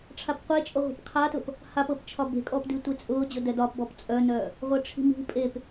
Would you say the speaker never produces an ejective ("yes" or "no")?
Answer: no